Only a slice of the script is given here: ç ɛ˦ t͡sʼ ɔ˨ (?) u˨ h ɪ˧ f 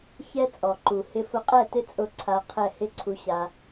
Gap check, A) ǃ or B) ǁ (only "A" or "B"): A